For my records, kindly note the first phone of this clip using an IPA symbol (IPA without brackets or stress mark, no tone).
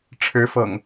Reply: ʈ͡ʂʰ